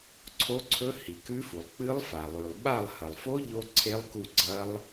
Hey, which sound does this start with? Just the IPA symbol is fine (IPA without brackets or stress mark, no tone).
ǀʰ